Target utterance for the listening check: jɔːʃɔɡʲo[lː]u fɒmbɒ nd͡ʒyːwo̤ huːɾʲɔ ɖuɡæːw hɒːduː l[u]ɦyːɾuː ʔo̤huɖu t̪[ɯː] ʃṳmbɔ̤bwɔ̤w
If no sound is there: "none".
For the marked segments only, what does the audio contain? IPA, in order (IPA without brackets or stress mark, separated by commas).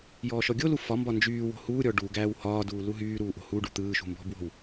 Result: l, u, ɯː